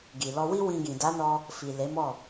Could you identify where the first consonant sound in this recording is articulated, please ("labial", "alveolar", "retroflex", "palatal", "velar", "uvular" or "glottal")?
velar